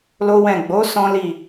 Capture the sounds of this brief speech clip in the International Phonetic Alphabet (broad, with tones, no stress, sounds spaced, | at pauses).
l o˦ w ɛ̃˦˨ ɡ͡b o˨˦ s ɔ̃˦ l i˦˨